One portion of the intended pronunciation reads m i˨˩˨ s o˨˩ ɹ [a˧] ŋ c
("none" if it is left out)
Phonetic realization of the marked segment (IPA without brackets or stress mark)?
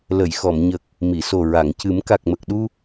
a˨˩˨